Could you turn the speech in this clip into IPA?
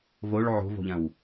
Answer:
v o ɭ ʕ o̤ v o̤ ʎ ɐ̃ w

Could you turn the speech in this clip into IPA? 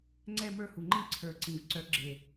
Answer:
ŋ͡ǀ ɛ˥˧ m ə˞˥˧ h u˨˩ ŋ͡ǃ ĩ˥˧ ǀʰ ə˞˨˩ ǀ ĩ˨˩ v ǀ œ˨˥ ɡ͡ǁ e˨˩

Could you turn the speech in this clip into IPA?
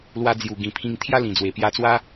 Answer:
l w a˧ d͡z j u˨˩ ɡ ĩ˨˩ pʰ ĩ˧ ŋ t̪ʰ j a˦ l ĩ˨˩ d͡z w e˨˩ p j a˧ t͡s w a˦

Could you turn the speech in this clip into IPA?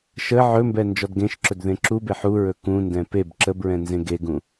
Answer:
ʃ ə ʕ ɵ m b ɛ n d͡ʒ ɔ d ɡ ẽ ʃ ǁ ɵ d ð ẽ ǁ u b e ħ u ɹ ɵ k ũ n d ɛ̃ p e b ǁ ə b ɹ ɛ̃ n z ẽ ɡ e ɡ ũ

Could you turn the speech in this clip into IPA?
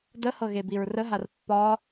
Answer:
d ə h ɤ ɣ e b i ɹ r ə ɦ a r pː ɒ

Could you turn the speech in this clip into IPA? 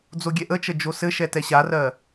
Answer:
d͡z o ɡʲ ɛ ʔ ə t͡ʃ ə d͡ʒ o s ɘ ʃ ɛ t ɛ ɕ a r ɜ

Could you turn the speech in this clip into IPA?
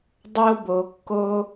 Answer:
dˤ o˧ b o˨ kː o˧

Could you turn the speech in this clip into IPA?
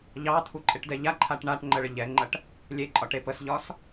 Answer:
ʎ ɑ t̪ʰ u ǃʼ e ʈ d ɛ ʎ a ǃʰ a ʈ ɳ a ʈ ŋ͡ǃ ə ɭ ə ʎ ɛ ŋ͡ǃ ɐ ʈ | lʲ e ǃʼ ɒ ʈ e p ə s ʎ ɒ s

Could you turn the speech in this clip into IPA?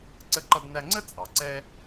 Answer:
ǀ ə˧ ǃ ʌ˧ d n æ˧ ŋ͡ǀ ə˥ t͡sʼ ɑ˩ ǀ ɛ˥

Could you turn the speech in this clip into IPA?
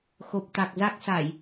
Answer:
x o˨˩ p̚ t̪ a˨˩ k̚ z a˦˥ k̚ s a˧˩˨ j

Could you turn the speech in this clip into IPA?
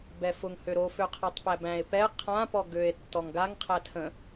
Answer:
b ɛ f ʊ ŋ h ø ɾ o f ø qʰ æ tˤ p æ b æ̃ e̯ p ɛ qʰ ã p ɔ ɡ ø e̯ tː ɔ ŋ ɡ a ŋ qʰ æ tʰ ə̃

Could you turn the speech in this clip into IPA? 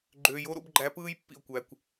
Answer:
ɡ͡ǃ øː˨ j o˦ ɾ o̰˦ b ɡ͡ǃ æ˧ p ɯː˦ j pː ḭ˨ o̯ kʷ æ˨ kʷ

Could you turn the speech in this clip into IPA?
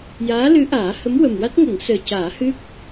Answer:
j aː˧˥ l ɨ˧˥ ʔ aː˨˩˦ h ə˧˥ m w ə˨˩ m w a˦˥ t̚ ŋ ə˨˩˦ ŋ s əː˨˩ c aː˨˩˦ h ɨ˦˥ k̚

